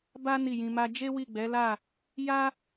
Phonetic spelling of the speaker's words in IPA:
b a˦ n i˦˨ j ĩ˧ m a˦ d͡ʒ e˦ w i˦˨ ɡ͡b ɛ˨˦ l a˦˨ | j a˦

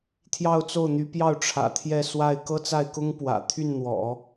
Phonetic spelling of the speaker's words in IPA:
t̪ʰ j ɑ˥˧ ʊ̯ t͡s o˥˩ ʊ̯ n̪ y˧˥ p j ɑ˥˩ ʊ̯ ʈ͡ʂʰ ä̰˨˩ t̪ʰ j ɛ˥˧ s w a˥˩ ɪ̯ k ɤ˥ t͡s a˥˩ ɪ̯ k ʊ˥ ŋ p w ä̰˨˩ t̪ʰ y˥˩ n n̪ w ɔ̰˨˩˦

